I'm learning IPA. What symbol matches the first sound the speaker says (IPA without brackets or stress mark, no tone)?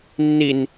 nː